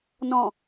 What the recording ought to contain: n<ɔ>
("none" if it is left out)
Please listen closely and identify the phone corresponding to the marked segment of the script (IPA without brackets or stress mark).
ɔ̃